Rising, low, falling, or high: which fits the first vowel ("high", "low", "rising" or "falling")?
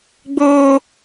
high